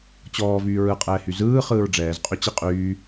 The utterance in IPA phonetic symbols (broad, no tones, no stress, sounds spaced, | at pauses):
t͡ɕ ɔː v yː ɹ ɯ qʼ ɛː h y z ɯː χ ɯː ɹ ɖ͡ʐ ɛː z qʼ y t͡ɕ i qʼ yː